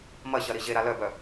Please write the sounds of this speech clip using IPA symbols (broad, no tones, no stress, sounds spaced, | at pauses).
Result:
m ɐ ɕ ɐ ɾ i ʑ e ɾ a l œ b œ